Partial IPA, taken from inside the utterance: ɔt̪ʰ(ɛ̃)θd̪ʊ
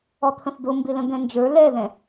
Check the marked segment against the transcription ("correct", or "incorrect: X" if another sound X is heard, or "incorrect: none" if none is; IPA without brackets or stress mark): incorrect: ə̃